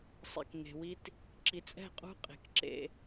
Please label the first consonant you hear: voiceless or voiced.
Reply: voiceless